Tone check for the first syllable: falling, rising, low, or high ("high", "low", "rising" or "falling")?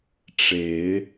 rising